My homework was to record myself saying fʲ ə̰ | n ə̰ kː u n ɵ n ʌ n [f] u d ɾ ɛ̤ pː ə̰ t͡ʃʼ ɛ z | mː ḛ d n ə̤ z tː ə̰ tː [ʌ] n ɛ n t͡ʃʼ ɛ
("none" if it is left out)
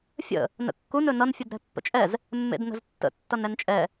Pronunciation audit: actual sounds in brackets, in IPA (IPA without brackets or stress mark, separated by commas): fʲ, ʌ